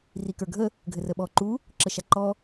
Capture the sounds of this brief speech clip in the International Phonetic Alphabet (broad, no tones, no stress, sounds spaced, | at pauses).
r i k ə˞ ɡʱ ə | ɡʱ ɘ r ə ɓ ɔ ǃ u | ǁ ə ʃ a ǃ ɔ